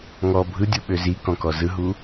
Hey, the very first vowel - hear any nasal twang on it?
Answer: no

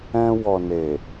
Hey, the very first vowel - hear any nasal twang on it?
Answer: yes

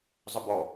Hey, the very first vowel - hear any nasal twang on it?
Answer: no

